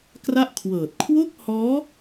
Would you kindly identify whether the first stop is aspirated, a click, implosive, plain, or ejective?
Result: plain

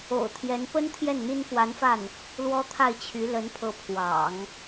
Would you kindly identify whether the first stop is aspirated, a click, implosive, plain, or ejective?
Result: aspirated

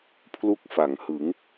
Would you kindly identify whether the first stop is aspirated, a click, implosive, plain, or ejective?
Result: aspirated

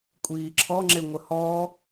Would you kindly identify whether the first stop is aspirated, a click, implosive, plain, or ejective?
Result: ejective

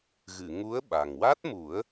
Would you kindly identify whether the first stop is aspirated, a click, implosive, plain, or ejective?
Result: implosive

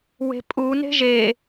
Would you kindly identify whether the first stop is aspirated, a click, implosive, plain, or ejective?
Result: ejective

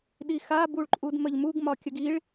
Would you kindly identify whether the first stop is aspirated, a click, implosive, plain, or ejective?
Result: implosive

